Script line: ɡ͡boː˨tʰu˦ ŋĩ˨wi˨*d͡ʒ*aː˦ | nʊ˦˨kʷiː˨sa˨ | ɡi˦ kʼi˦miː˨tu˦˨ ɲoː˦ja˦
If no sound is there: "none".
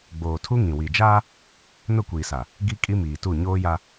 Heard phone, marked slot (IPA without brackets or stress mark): d͡ʒ